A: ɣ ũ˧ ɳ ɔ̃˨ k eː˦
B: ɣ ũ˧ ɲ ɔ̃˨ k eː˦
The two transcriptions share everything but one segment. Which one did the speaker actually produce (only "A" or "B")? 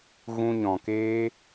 B